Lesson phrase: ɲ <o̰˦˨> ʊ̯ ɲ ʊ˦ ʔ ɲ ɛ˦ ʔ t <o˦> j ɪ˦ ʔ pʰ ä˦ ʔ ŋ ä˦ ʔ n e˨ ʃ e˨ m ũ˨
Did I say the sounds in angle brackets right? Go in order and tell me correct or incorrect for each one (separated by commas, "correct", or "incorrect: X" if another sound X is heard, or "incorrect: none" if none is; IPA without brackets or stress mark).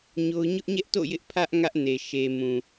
incorrect: o˦, incorrect: o̰˦˨